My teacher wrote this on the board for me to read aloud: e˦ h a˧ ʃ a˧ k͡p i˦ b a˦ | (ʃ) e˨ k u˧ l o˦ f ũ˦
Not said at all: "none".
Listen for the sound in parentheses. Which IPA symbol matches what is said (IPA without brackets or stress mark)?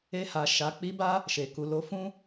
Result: ʃ